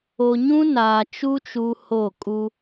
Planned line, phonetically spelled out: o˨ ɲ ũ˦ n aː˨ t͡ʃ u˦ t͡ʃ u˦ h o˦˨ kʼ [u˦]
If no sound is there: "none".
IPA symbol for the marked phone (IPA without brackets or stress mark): u˦